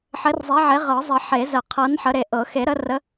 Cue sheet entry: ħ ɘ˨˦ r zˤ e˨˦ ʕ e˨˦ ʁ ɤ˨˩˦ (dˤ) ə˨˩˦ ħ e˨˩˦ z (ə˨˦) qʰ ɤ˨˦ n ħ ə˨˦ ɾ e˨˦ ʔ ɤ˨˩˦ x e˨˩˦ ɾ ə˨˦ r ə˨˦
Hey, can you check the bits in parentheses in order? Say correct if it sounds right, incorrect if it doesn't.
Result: incorrect: zˤ, incorrect: ə˨˩˦

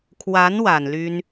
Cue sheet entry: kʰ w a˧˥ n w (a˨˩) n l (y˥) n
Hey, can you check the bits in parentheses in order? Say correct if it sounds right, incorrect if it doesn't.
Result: correct, correct

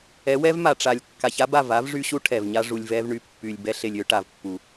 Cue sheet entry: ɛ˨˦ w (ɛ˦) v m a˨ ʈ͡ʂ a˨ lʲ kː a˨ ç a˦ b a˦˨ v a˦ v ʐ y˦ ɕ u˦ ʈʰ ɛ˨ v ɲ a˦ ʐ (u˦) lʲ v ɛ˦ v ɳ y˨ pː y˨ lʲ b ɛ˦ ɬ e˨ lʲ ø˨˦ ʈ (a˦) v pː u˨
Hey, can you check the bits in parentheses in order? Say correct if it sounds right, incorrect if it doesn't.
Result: correct, incorrect: u˨, incorrect: a˨

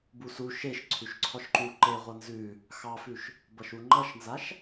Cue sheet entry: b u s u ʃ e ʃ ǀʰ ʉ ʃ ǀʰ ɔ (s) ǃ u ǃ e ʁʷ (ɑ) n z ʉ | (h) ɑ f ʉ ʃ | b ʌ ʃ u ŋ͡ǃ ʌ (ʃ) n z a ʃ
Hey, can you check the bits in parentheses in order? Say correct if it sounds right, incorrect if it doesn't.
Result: incorrect: ʃ, incorrect: ʌ, incorrect: x, correct

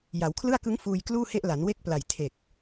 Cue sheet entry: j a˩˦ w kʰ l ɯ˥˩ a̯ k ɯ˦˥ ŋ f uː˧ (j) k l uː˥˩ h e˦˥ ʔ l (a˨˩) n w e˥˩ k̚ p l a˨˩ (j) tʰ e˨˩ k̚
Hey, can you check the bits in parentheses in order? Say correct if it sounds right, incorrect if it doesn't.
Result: correct, incorrect: a˩˦, correct

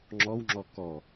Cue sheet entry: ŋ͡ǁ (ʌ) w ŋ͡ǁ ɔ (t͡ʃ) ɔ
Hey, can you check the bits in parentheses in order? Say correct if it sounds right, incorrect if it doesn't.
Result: incorrect: ɔ, incorrect: k

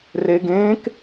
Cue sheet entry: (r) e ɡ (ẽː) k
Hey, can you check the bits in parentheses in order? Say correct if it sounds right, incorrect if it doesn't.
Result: correct, correct

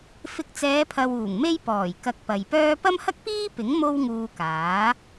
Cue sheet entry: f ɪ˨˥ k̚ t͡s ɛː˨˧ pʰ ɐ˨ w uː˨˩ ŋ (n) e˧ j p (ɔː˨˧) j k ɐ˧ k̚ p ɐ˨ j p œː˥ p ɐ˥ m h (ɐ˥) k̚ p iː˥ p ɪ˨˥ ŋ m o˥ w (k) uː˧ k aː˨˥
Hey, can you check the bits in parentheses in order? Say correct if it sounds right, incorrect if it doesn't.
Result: incorrect: m, incorrect: ɔː˨˩, correct, incorrect: ŋ

